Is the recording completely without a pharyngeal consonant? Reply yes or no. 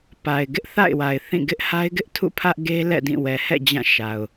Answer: yes